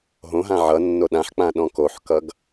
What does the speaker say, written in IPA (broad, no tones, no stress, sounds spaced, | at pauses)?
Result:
ɦ õ ɦ ã ʕ ʌ nː o ɗ ã ħ k͡p ã ɗ ɔ̃ k o ħ k ʌ ɡ